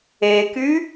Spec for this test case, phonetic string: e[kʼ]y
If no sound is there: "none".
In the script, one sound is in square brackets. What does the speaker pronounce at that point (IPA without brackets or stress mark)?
k